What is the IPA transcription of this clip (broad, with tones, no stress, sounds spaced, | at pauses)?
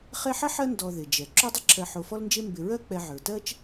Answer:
χ e˦ ħ ɐ˥ ħ ɜ˦ n d ɔ˨ ð ɪ˩ d͡ʒ ɛ˩ ǁ o˦ dˤ ɪ˦ ǁʰ ɜ˨ ħ o˨ f ɔ˦ l n d͡ʒ e˦ m b ɪ˨ ɹ ɜ˦ k͡p ɛ˨ ʕ ə˞˩ t ɜ˦ t͡ʃ